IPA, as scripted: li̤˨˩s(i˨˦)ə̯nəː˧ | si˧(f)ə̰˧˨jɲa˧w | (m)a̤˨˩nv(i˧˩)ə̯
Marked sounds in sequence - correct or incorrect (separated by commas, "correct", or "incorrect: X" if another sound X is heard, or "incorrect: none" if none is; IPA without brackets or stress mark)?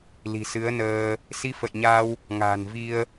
incorrect: ɨ˨˦, correct, incorrect: ŋ, incorrect: i˧